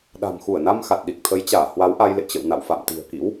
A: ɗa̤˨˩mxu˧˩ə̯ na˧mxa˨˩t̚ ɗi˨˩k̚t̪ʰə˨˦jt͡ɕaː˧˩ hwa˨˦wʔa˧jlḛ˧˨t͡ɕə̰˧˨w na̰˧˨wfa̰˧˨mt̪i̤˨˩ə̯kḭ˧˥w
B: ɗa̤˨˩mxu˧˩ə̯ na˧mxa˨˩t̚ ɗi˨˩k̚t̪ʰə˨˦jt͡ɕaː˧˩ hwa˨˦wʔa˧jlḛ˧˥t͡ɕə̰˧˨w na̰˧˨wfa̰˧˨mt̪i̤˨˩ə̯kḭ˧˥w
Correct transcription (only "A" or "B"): A